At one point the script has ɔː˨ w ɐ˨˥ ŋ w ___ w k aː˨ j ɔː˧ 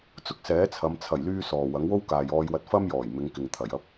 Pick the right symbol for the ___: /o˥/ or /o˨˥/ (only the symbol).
o˥